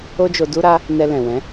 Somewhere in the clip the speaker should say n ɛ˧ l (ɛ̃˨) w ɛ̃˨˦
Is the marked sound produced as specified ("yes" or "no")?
yes